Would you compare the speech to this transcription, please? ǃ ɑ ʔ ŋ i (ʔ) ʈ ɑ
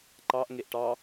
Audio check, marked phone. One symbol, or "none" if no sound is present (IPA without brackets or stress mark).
ʔ